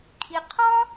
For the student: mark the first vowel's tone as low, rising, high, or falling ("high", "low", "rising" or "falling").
low